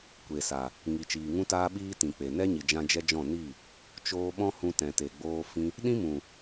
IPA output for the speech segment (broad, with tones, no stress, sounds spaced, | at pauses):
kʷ e˨ s a˨ | ŋ i˨ t͡ʃ iː˨ ŋ ũ˦ t aː˦ ɓ iː˦ t ĩ˨ k͡p e˨ n ɛ˦ ɲ i˨ d͡ʒ ã˧ d͡ʒ ɛ˦ d͡ʒ ɔ̃˦˨ n i˦˨ | t͡ʃ oː˧ ɓ ɔ̃˦ h ũ˧ t ɛ̃˨ t e˨ ɡ͡b oː˧ f ĩ˦ | ɗ ĩ˦ m ũ˨